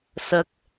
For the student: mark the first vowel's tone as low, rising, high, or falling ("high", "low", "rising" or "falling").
rising